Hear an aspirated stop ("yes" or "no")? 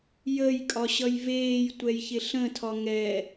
yes